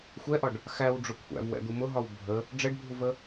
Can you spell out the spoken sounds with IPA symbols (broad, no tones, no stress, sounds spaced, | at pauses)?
xʷ ɛ ʔ ɒ ɖ | x æ w ɖ͡ʐ ʊ kʷʰ æ̰ v w ɛ̰ d̪ u m ʊ ɦ ɒ w bʱ ə | ɖ͡ʐ ɛ ɖ bʱ u v ə